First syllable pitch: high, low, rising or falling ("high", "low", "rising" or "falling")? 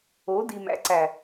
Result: rising